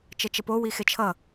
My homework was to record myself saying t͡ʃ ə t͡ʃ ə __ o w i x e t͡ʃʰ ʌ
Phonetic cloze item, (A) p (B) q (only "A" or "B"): A